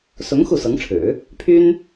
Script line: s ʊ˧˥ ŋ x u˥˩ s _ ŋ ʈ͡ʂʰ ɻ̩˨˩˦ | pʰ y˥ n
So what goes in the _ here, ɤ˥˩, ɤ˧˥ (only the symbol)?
ɤ˧˥